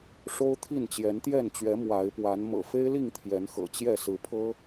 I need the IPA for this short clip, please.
ʂo˦ʊ̯t̪ʰi˥˨n t͡ɕjɛ˨˦nt̪jɛ˥˨nt͡ɕɥɛ˨˦ mwa˨˦ɪ̯pwa˨˦n mɤ̰˨˩fe˦ɪ̯li˥˨ŋ t̪ʰjɛ˨˦nxɤ̰˨˩t͡ɕjɛ˥˨ sɹ̩˨˦pʰɤ˦

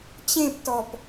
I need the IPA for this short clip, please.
t͡ɕẽptɔp

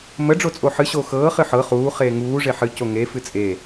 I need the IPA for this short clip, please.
mə ɖ͡ʐot͡sʼoħɨ ɕoxɤː χɨħɤ χuː χeːŋuː ʐeħɨ coŋe fɨt͡sʼe

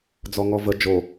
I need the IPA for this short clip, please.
d͡zɔŋɔvə d͡ʒo

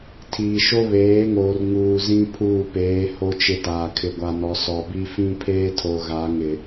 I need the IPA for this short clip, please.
tʰiː˨ʃo˦βeː˨˦ŋoː˨r ŋuː˨zĩ˦ pʰuː˦˨peː˨˦ ho˦t͡ʃɪ˦taː˨ kʰɪ˨ɡʷa˨nɔ˨ sɔ˨bi˦ fĩ˦pʰeː˦tʰo˨ ɣa˨˦ŋɪ˨

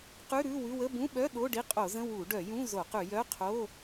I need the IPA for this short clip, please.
qʉ˧˥˧ ɾʉ˧˥˧wʉ˧˥˧ wə˧˥˧bũ˧˥˧ɓœ˧˥˧ ɗo˧˥˧ɖi˧˥˧ qʼo˧˩˧zə̃˧˥˧ wu˧˩˧ ɖœ˧˩˧ jũ˧˥˧zo˧˩˧qʉ˧˩˧ jœ˧˥˧ qʰo˧˥˧

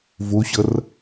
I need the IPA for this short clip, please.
voɕʌr

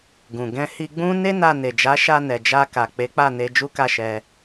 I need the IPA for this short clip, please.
ɡũ˨ ɡɛ̃˧hi˧ɡ͡bũ˦ ne˦na˧ ne˨d͡ʒa˨˦ʃa˧ nɛ˨d͡ʒa˧ ka˨k͡pe˨˦k͡pa˦˨ne˧ d͡ʒu˦ka˦˨ʃɛ˧

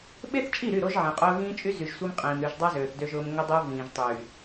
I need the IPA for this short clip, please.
ɓe˦θt͡ʃʼi˦˨ɾy˦˨ ɾo˦ʒʕẽ˨qʼʊː˦ ɣĩː˦t͡ʃʼy˦zy˨ʒsʷe˦m qʼĩː˨m ɾy˨ʒdˤa˦ zøː˨θdø˦ʒʊː˦m ŋʊ˦dˤʊː˦ vĩː˨ʒtˤyː˨

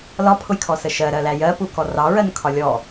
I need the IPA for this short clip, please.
lɒpʰʊjkʰɔsə ʃɜɾɜlæ jɜpukɔ rɑɹɜnkʰɒ lʲɔ

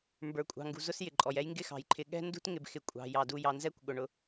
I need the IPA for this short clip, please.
mbə˞˨kʷʼɑ̤˨ ŋɡṳ˨zʊ˥sjɪ˩ǃʼɔ˩j ɛ˥jŋɡɪ˥xɑ̤˩jǃʰɪ˨ ɠɛ̤˥ ndṳ˥t ŋɪ˨b xɪ˩ kʷʼɑ̤˩jɑ˩ du˨ jɑ˨nzɛ˥kʷ ɠʊ˩ɳʊ˨

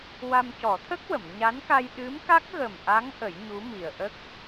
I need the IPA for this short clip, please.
wa˧mcɔ˨˩˦t̪ʰə˦˥k̚ wə˨˩˨mɲa˧˥nka˧j ɗɨ˧˥mka˦˥k̚ɣə˨˩mʔa˧˥ŋ ʔə˨˩˦jɲu˧˥mi˨˩ə̯ʔə˦˥k̚

